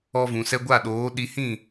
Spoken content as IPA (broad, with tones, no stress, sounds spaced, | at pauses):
ɔ˧ v ũ˨ s ɛ˧ ɡʷ a˦˨ ɗ oː˨˦ ɗ i˧ h ĩ˦˨